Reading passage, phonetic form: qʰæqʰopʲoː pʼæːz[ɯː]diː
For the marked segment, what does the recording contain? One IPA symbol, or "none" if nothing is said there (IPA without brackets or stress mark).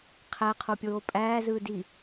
ɯː